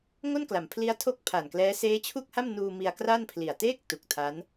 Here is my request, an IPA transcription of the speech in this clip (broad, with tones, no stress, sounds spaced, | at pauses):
ŋ o˥˩ n k l a˩˦ m pʰ l i˦˥ a̯ tʰ o˥˩ k̚ pʰ a˨˩ n k l ɛː˦˥ s eː˦˥ t͡ɕʰ u˥˩ k̚ h a˥˩ m n uː˧ m i˧ a̯ k r a˥˩ n pʰ l i˨˩ a̯ t eː˥˩ k̚ t u˨˩ k̚ tʰ a˦˥ n